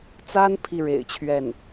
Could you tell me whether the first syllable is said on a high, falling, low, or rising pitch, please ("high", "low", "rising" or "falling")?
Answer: high